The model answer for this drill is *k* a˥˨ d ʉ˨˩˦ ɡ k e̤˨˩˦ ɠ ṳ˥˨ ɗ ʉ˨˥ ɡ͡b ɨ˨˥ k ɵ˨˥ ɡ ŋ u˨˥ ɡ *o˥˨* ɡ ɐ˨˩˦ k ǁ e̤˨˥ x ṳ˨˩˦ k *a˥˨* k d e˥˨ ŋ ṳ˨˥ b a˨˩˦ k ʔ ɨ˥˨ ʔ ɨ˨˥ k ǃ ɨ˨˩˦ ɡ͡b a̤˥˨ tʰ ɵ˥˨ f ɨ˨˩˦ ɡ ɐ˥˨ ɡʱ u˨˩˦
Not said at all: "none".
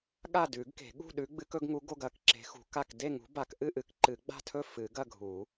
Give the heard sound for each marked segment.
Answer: ɠ, o˥˨, a˥˨

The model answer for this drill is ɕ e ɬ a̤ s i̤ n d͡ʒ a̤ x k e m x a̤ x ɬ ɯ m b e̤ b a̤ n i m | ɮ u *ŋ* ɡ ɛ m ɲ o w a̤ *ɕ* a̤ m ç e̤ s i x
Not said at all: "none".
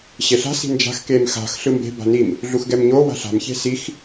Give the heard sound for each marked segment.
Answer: x, ɬ

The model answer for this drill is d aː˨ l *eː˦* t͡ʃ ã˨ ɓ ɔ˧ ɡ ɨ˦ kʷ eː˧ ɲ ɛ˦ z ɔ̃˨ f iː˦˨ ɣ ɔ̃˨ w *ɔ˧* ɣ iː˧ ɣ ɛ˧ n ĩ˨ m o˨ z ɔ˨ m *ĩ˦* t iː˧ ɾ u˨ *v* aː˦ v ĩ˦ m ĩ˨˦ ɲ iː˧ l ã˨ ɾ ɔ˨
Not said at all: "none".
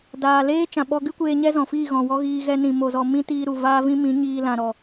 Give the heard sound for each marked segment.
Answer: eː˦, ɔ˦, ĩ˦, v

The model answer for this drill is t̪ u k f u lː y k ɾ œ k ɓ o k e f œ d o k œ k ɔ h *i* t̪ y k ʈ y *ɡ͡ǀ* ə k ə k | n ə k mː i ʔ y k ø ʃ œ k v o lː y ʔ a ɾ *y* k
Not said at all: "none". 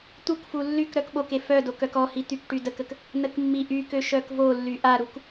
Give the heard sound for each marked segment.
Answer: i, d, u

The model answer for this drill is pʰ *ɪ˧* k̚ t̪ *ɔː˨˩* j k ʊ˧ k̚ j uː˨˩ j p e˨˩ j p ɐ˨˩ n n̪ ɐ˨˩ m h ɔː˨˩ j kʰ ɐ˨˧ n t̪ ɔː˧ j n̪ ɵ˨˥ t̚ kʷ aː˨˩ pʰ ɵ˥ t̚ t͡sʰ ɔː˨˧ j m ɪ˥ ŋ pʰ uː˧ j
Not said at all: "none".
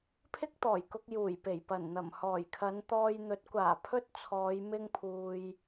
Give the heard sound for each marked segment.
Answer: ɪ˥, ɔː˨˩

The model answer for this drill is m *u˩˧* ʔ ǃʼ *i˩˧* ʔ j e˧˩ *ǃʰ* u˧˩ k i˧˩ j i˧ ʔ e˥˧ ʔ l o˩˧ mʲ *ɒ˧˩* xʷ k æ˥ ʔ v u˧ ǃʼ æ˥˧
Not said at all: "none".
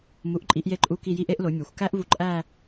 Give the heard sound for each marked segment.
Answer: u˩˧, i˩˧, ǃʼ, ɒ˩˧

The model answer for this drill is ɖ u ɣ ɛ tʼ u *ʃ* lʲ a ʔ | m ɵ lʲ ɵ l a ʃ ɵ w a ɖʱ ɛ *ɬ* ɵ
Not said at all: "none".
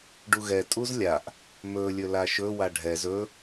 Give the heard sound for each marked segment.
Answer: z, z

